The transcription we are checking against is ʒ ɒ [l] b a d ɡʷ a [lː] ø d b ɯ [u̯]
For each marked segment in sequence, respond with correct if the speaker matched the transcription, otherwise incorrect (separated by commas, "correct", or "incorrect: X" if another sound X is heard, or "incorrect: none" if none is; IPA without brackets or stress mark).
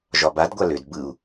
incorrect: none, incorrect: l, correct